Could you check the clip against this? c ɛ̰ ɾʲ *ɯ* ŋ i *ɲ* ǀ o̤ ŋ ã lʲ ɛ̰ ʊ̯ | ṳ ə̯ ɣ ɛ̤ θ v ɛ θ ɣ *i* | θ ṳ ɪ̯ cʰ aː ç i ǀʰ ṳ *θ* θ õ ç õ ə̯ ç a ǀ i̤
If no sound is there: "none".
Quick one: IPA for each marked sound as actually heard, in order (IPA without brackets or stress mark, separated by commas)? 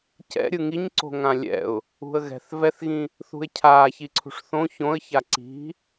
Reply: ɯ, ɲ, ĩ, ʂ